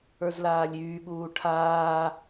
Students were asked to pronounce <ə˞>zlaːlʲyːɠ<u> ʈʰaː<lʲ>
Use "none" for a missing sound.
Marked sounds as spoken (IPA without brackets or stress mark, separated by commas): ə˞, uː, none